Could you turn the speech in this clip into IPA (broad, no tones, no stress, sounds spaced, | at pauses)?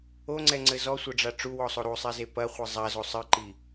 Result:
o ŋ͡ǀ ɛ ŋ͡ǀ ɘ z ɔ sʷ ɐ ɖ͡ʐ a ʈ͡ʂ u w ɔ sˤ o ɾ u sˤ i z e p ɐ χʷ ɘ zˤ a z o sˤ ɨ ǃ i